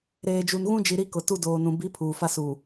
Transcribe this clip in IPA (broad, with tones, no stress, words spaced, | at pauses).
ɾeː˨d͡ʒu˨n ɣũ˦d͡ʒi˨ ɾi˦kʊ˨ tu˦ doː˨nũ˨ bi˨˦ pʰuː˨ fa˦suː˨